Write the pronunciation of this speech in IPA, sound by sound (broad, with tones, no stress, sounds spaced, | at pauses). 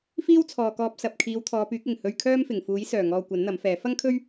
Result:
f iː˥ w t͡sʰ ɔː˨ k ɔː˧ p̚ s ɐ˨ p̚ kʰ iː˨˧ w t̪ʰ ɔː˨˧ p yː˨˥ k̚ ɪ˨˩ ŋ h ɵ˧ ɥ kʰ œː˥ m f ɪ˨˩ ŋ f uː˨˥ j s œː˨˩ ŋ ɔː˨ kʷ ɐ˨˥ n n̪ ɐ˨˥ m f ɛː˨˥ f ɐ˥ ŋ kʰ ɵ˥ ɥ